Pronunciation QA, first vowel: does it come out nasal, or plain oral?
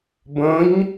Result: nasal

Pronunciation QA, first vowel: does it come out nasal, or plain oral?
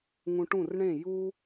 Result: nasal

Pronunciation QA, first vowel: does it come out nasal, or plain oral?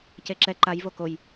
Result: oral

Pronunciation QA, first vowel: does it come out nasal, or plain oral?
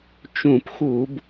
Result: nasal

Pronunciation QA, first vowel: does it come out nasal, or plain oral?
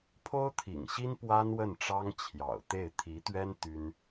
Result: oral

